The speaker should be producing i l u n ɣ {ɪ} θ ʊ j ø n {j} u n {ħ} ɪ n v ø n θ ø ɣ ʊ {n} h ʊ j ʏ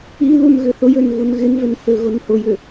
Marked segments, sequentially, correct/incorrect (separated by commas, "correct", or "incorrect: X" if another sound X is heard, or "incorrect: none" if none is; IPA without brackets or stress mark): incorrect: ʏ, incorrect: ɣ, incorrect: ɣ, correct